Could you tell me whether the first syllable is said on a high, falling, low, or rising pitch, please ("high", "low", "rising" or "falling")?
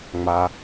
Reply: low